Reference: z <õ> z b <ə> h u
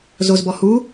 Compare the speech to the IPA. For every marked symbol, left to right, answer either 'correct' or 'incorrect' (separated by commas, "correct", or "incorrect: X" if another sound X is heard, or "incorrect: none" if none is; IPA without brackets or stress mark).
incorrect: o, incorrect: ɔ